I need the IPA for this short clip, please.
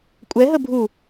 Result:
kʷʼ ɛ ɦ ə bʱ u

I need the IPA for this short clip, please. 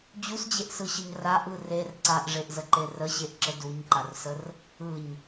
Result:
d͡ʑ u s d͡ʑ e ʔ s ɯ ɕ ə ɲ r a ʔ ɯ r e r ǀ a ʔ ʐ e ʔ z ə ǃ e r ə ɕ e ʔ ǁ ə d u ɲ ǃ a r s ə r | ɯ ɲ

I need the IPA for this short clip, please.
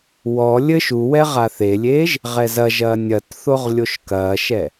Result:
w ɔ lʲ ɘ ʃ u w ɛ ʁ a θ e lʲ eː ʒ | ʁ ɛ z ɐ ʒ ɐː nʲ ɐ t θ o ʁ lʲ o ʃ k ɐː ʃ ɛ

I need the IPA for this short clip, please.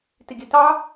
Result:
t i ɡ i t ɑ

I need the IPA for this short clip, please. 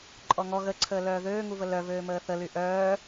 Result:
ǃʼ ɔ ŋ ɔ ɣ ə ǀʰ əː l œː ð øː ŋ u v ə l œ v øː m əː θ ə l y ʔ œː

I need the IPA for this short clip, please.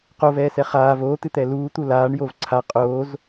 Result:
q o v ɛː s ɛ χ aː v oː t̪ ɨ t̪ ɛ l uː t̪ u l aː ɳ j o v ǀʰ a qʼ oː z

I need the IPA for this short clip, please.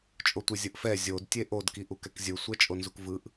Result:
t͡ʃʼ o tʷ ɯ zʲ ɯ ʔ f ɛ zʲ o d tʲ e ʔ o d k i ʔ u k ɛ k zʲ ɯ sʷ ɛ t͡ʃʼ o n z u k v ɯ ʔ

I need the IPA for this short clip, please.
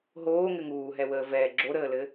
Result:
ɦ oː ŋ ɘ ŋ uː ɦ ɛ w əː v ɛ ɡ͡ǁ o ɾ əː l ɘ

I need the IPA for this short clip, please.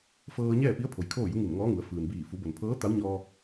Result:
f ɤː˧ ɲ ɛː˥˨ p i˧˥ ə̯ pʰ o˩˧ j kʰ oː˥˨ j u˧˥ ŋ i˧˩ n ŋ ɔː˧˥ ŋ u˩˧ ə̯ f ɯː˩ n b iː˧˩ f u˩˧ b o˩ n pʰ ɤː˧˥ t̪ a˧˥ w ɲ ɔː˧

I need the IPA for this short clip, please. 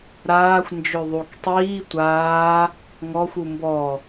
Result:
ɾ aː xʷ n d͡ʒ ø ðˤ u k tˤ iː tʷ aː | ŋ ɔ xʷ u m b ɔ

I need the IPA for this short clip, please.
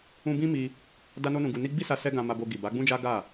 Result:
ũ˦ b ĩ˦ m i˧ | d a˦ n o˦ n ũ˧ ɡ u˧ n i˦ ɡ͡b i˦ s a˧ s ɛ˦ ɡ ã˧ m a˧ b o˧ ɡ i˨ b a˨˦ ɡ͡b ũ˦ d͡ʒ a˦ ɡ a˦˨

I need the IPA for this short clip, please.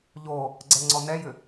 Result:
ʎ o | ɡ͡ǀ ɛ ŋ͡ǀ ɔ n ɛ j ʏ

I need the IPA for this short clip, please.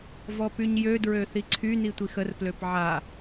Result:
v ɔ p y ɲ j ø d ɹ ø θ i ǀʰ y n i tʷ i x ə r p l ø p ʕ a

